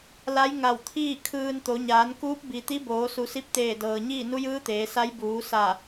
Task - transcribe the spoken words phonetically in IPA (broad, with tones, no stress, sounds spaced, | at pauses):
l a˧˥ j ŋ a˧˩ w t̪ʰ iː˥˨ kʰ ɯː˧ n t̪ o˩˧ ɲ aː˩˧ n k uː˧˥ p̚ b i˩ t̪ i˧˥ b oː˩˧ s u˩˧ s i˧˥ p̚ t̪ eː˧˩ d ɤː˩ ɲ iː˥˨ n u˧˥ j ɯː˧˥ t̪ eː˩˧ s a˧˥ j b uː˩˧ s a˧˩